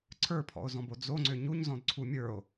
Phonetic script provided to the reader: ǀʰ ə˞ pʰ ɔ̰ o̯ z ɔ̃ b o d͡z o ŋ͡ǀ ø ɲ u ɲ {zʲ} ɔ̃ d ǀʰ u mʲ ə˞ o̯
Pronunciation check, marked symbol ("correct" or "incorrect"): incorrect